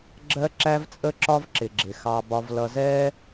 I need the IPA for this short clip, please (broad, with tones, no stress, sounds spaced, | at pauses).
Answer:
ɡ͡ǁ ɜ˦ ǁ æ˦ v t͡sʼ ə˦ ǁ ɒ˦ v ǁ ɪ˨ ɡ͡ǁ ɪ˨ x ɑ˦ b ɒ˦ v l ʌ˦ z ɛ˦